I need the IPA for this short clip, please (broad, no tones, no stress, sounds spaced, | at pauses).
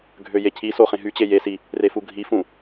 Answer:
ɡʱ ø j e cʰ i s o χ ẽ ɦ y t͡ɕ e j e s i | r e f u ɡʱ i f ũ